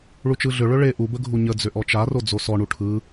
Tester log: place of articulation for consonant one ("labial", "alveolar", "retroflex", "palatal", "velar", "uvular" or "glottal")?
retroflex